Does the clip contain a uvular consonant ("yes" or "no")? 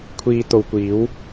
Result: no